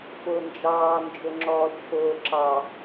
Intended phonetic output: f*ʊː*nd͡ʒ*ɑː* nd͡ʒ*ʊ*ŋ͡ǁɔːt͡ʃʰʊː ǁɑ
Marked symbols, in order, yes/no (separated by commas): yes, yes, yes